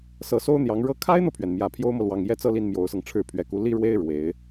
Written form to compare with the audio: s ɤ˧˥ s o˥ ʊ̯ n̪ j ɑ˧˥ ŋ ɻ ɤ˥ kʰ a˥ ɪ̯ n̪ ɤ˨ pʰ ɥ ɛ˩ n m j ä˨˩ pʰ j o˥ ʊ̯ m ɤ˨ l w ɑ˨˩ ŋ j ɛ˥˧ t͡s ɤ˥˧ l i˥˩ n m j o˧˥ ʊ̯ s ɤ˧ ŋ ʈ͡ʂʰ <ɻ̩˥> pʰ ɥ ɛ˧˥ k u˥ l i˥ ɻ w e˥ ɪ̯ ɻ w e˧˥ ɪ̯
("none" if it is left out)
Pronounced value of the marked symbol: ɻ̩˥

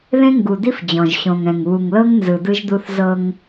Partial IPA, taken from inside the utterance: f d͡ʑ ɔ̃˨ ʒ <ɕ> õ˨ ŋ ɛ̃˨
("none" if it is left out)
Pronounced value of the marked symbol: ɕ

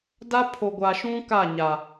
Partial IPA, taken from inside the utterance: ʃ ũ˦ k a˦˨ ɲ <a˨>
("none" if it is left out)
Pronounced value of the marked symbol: a˨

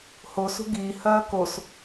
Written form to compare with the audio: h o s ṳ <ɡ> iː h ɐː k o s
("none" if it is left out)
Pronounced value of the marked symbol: ɡ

